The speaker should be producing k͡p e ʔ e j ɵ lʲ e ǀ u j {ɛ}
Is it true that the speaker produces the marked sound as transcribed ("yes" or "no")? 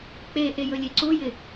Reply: no